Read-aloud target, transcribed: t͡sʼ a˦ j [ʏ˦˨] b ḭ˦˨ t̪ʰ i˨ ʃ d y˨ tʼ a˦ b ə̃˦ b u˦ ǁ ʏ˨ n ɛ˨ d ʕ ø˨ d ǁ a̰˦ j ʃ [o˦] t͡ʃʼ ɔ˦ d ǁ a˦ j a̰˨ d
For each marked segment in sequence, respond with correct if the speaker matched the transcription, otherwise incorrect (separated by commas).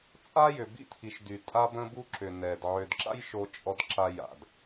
incorrect, correct